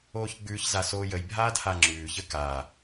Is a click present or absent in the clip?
present